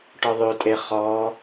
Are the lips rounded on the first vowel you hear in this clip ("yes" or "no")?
yes